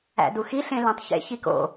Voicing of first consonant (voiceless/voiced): voiced